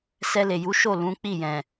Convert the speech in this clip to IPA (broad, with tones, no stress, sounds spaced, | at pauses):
s ɛ˧ l e˨ j u˨˦ ʃ o˦˨ l ũ˨˦ k͡p i˦˨ j ɛ̃˨